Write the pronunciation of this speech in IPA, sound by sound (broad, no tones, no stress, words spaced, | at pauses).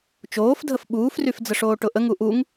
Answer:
t͡ʃoːfdʱəf ɓuːfryf d͡zəʂoːʈʊʔəŋ uʔuŋ